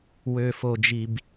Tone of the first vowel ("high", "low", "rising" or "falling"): low